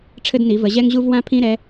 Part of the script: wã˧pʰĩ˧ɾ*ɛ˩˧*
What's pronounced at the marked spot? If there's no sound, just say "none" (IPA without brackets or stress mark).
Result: ɛ˩˧